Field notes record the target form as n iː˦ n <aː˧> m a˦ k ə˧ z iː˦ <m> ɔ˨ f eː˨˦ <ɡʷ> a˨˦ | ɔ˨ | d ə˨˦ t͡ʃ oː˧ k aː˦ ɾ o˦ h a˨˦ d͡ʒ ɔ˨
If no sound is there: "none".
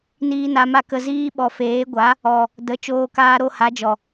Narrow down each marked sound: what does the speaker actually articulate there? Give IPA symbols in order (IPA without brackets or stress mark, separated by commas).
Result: a˧, ɓ, ɡʷ